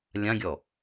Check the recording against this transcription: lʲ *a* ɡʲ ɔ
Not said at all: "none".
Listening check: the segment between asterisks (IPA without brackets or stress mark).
ã